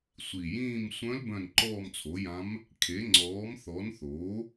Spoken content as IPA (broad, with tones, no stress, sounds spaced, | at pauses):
sʷ i˨˩ j ĩː˦˨ m sʷ œ̃˧˥ l b œ̃˦˨ n ǃ ɔː˦˨ m t͡sʰ o˩˥ j ã˧˥ m | kʰ e˩˥ ŋ͡ǀ ɔː˩˥ m θ ɔ˩˥ n θ oː˩˥